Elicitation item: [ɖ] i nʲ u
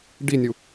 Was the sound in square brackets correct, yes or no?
yes